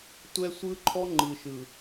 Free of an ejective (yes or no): yes